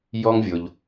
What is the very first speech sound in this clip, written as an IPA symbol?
j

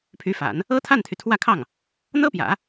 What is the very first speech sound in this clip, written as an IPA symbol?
pʰ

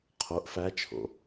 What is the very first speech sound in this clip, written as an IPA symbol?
qʰ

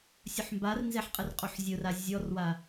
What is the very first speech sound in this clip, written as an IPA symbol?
sʲ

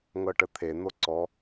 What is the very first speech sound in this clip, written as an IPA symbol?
ŋ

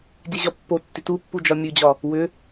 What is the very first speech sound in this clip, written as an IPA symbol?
dʲ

